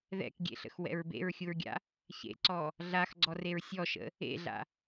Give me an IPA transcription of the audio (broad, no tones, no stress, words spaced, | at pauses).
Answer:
ðɛ̰kɡʲḛɬə̰xwɛ̰ɹ bḛɹxʲuɹɡʲa̰ | çḛǀɔ | ɮaxɡ͡ǀɔreɹ sʲɔʃə̰ | ḛɮa̰